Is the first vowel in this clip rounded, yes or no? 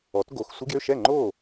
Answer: yes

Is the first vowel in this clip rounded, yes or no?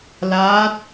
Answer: no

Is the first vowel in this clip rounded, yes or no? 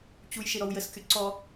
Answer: yes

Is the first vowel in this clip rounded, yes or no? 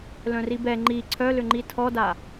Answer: yes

